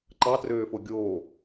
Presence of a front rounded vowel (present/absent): present